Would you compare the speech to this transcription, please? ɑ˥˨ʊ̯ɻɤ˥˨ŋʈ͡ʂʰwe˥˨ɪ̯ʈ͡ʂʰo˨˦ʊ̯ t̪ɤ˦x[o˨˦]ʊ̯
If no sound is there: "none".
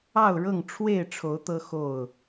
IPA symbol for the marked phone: o˥˨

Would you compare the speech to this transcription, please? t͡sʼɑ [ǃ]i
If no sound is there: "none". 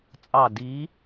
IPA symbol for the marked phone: d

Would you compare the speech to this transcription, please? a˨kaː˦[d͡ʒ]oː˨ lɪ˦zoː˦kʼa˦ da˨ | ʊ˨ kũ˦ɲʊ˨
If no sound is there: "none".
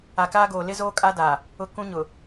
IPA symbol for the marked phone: ɡ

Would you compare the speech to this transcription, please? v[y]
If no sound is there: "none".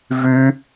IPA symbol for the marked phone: y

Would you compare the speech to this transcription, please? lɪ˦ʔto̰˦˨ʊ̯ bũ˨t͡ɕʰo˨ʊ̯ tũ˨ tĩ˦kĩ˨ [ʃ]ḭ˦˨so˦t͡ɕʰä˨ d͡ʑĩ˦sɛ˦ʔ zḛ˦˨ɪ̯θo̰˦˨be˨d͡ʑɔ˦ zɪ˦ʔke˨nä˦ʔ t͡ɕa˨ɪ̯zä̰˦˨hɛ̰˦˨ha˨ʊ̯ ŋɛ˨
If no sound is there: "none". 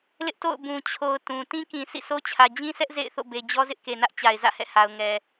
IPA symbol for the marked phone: s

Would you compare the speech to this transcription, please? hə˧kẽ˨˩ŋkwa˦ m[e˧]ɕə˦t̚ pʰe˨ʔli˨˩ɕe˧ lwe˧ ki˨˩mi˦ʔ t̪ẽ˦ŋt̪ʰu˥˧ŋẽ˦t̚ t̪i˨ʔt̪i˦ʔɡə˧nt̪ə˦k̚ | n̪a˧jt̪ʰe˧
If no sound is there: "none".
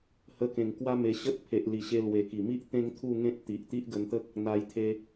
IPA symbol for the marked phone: e˧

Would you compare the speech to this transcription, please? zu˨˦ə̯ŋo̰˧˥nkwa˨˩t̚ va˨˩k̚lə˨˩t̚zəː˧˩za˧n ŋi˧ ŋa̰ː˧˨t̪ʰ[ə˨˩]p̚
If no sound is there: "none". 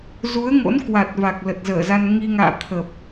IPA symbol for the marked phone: ə˨˩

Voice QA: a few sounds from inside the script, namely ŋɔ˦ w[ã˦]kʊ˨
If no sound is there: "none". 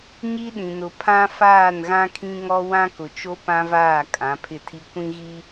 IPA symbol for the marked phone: ã˦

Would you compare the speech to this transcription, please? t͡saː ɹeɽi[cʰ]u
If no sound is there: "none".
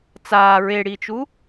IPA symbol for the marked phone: t͡ʃ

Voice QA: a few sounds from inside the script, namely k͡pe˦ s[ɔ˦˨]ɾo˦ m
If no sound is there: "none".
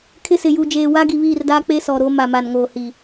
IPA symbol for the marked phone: ɔ˨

